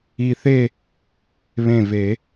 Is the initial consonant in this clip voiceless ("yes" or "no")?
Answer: yes